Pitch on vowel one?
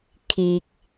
low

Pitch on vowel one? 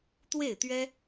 falling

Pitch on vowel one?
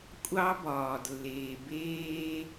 high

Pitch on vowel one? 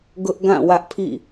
high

